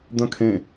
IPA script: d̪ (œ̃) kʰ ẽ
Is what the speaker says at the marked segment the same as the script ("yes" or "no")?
yes